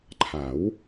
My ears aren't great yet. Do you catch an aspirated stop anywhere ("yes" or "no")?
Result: yes